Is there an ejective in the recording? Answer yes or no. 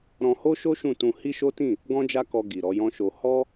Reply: no